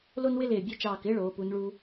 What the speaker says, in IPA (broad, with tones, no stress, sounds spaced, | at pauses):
l o˥ n w ɪ˥ l ɪː˧˩ bʲ e˥˧ t͡ʃ ɑː˧˩ k ɪː˥ ɭ oː˩˧ p u˩˧ n ɭ u˧